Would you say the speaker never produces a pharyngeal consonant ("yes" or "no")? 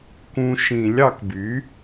yes